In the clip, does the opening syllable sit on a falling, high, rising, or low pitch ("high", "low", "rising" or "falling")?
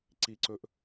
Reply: low